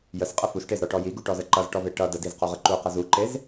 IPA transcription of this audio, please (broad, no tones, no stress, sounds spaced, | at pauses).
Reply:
j ə s qʼ ə f u s ʈ e z ɾ ɔ ʈ ɔ j i ɡ u ʈ ɔ z ə ǃ ʌ z ʈ ɔ v e ʈ ʌ d ə d i z q ɔ ʁ ə ǃ u q ə z u ǃ e z